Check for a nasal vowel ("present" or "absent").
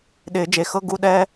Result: absent